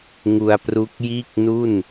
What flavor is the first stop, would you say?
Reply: plain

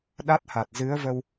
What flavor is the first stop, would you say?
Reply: implosive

